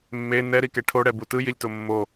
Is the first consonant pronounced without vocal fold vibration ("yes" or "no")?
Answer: no